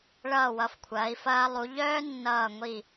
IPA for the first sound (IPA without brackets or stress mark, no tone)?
ɭ